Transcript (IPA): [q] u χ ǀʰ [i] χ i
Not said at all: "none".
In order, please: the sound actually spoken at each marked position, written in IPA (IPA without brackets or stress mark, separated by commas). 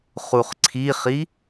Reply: χ, i